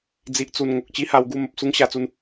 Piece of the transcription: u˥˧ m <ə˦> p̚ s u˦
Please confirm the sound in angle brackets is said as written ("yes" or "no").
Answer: no